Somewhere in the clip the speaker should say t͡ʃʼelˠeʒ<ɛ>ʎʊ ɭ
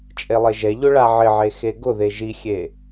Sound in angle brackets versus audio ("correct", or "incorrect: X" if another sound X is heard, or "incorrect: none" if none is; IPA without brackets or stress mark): correct